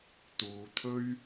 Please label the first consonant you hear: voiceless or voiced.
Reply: voiceless